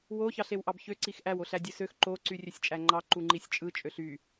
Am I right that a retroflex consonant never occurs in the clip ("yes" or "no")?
yes